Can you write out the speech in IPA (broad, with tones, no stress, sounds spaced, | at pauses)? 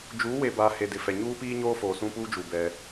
d͡ʒ uː˨˦ w e˨ b aː˨ h e˨ d ɪ˨ f ɛ˨ ɲ uː˦ p iː˦ ɲ oː˦ f oː˨ s ũ˦ p uː˦ d͡ʒ u˨ b ɛ˦